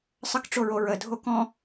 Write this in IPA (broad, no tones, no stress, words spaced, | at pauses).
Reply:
sˤəkʈ͡ʂoɹo ɹədʱo kɔ̃